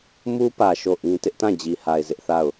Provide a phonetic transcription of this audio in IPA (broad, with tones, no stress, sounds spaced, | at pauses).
m u˦ p ä˨ ʃ o˦˨ ʔ ĩ˦ t ɪ˦ ʔ t ã˦˨ d͡ʑ i˨ h a˨ ɪ̯ z ɪ˦ ʔ θ a˦˨ ʊ̯